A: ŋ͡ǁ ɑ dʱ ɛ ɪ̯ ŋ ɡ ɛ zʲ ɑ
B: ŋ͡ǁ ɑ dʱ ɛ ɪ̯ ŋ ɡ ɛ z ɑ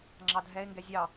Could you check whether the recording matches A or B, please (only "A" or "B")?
A